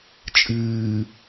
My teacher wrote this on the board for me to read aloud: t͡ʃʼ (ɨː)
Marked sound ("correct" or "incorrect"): correct